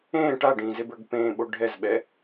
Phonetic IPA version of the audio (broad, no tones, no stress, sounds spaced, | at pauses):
ẽː ʈ a ɖ ĩː z e b ə˞ ɡ p ẽː ɓ o ɖʱ ɛ z ɓ ɛ